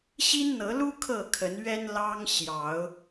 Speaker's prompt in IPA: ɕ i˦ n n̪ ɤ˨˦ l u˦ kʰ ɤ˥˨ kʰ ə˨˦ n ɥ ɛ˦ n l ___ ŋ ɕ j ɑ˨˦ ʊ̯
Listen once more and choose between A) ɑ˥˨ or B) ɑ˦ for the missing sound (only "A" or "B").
B